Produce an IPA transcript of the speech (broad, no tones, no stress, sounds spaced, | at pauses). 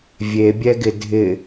vʲ e bʲ ɛ ɡ ɪ dʱ ɪ